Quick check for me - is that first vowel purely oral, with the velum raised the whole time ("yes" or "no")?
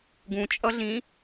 no